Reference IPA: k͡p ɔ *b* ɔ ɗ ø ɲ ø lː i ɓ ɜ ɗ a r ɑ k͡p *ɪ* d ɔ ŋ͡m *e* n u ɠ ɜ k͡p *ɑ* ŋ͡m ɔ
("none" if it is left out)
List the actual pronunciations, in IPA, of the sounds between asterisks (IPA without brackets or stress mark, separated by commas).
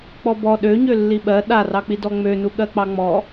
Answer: b, i, ø, ɑ